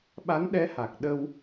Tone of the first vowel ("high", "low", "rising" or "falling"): rising